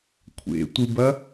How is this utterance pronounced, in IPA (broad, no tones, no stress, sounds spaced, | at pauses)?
kʷʰ ḛ tʷ ɨ b ɐ